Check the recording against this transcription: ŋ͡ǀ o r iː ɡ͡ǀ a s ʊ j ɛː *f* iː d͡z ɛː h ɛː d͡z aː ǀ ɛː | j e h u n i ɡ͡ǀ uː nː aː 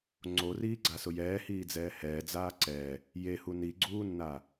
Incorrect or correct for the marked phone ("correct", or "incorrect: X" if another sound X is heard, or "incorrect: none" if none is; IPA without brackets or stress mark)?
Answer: incorrect: h